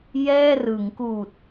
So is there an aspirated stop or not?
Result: no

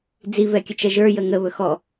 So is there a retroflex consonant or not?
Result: no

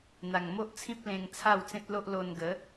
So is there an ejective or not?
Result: no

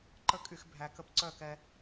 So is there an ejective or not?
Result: yes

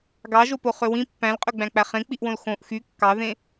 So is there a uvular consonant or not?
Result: yes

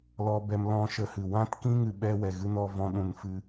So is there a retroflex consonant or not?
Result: no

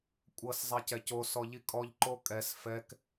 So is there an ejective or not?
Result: yes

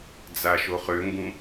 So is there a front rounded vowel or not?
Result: yes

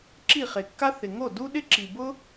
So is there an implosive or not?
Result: yes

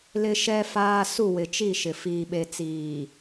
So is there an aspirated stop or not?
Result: no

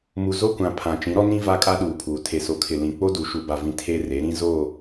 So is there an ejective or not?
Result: yes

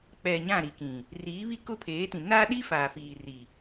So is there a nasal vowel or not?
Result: yes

